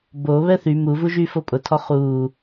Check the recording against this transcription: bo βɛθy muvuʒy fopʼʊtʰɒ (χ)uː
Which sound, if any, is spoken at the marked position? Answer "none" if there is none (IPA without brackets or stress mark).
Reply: χ